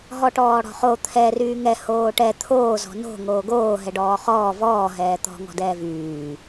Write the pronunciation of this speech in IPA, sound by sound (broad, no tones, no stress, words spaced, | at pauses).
ɦɔʈɔːɽɔ̤χo t̪ʰɛ ryːŋɛ hoːʈɛ t̪ʰoː zɔ̤no̤ ŋoːɡoː ɦɛɖɔːχɔː vɔː ɦɛːt̪ɔ̤ ŋɔ̤dɛːvyː